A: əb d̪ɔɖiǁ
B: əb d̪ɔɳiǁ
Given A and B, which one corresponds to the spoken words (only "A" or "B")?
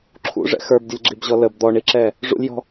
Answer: B